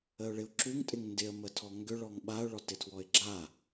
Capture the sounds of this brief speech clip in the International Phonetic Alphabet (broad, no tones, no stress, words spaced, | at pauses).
əʊ̯ɭɪʊ̯ǁuŋ tʼɪŋndɪə̯ mətʰɔŋɡʏ ɭɔŋɓaʊ̯ ɭɔtɪtʰwɔɪ̯ɡ͡ǁa